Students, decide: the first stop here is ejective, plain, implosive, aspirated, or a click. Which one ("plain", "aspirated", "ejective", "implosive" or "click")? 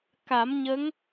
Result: plain